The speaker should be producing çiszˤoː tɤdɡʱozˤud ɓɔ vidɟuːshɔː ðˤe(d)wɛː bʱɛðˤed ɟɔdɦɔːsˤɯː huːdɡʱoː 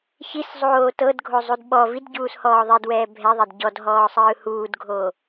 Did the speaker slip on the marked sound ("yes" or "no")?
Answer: no